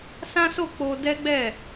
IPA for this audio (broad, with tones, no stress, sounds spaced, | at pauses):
s ã˦ s o˦˨ k͡p o˧ d ɛ˦ ɡ͡b ɛ˦˨